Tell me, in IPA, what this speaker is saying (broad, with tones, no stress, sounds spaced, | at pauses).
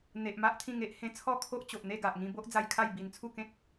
n̪ e˨ ʔ m a˦ ʔ t̪ʰ ĩ˥˧ ŋ e˦ ʔ h ẽ˧ t͡sʰ ɔ˥˧ kʰ o˦ ʔ t͡ɕ o˨ ʔ n̪ e˥˧ ɡ a˨ ʔ ŋ ĩ˧ b o˦ ʔ d͡z a˧ j kʰ a˥˧ j b i˧ n t͡sʰ u˥˧ k ẽ˦ k̚